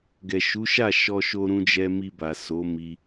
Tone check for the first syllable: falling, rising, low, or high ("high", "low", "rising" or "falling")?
low